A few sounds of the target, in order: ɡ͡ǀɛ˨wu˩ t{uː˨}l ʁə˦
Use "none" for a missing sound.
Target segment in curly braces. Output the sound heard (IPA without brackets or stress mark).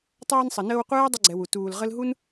uː˨